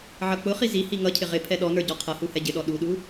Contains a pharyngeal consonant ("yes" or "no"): yes